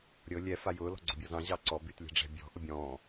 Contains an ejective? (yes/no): no